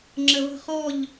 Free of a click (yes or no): no